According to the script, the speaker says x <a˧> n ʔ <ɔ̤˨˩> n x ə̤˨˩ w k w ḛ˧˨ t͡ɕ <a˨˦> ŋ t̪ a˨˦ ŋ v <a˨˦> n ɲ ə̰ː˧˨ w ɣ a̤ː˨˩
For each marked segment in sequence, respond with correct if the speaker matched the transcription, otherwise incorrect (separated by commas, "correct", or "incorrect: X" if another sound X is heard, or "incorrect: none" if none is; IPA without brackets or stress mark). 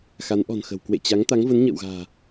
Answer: incorrect: a˨˦, correct, correct, incorrect: ə˨˦